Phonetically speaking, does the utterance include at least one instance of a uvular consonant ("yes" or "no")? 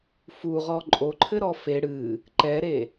yes